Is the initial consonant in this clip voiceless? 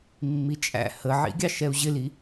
no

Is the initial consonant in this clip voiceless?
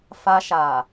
yes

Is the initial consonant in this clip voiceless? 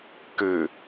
yes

